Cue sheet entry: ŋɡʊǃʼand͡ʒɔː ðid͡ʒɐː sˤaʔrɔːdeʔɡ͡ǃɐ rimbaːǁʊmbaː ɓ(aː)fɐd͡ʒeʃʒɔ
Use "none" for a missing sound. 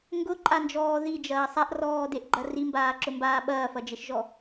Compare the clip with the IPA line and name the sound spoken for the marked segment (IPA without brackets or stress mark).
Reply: ɐː